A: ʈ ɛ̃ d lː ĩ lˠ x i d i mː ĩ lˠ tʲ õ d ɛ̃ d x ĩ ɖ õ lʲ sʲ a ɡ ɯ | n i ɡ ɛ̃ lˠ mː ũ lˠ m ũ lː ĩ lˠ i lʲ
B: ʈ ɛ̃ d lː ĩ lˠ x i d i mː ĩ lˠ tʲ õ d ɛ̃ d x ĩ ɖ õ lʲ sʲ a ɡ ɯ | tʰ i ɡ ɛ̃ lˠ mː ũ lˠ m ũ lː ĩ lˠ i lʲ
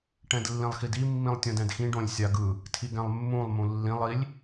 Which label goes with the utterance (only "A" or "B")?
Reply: B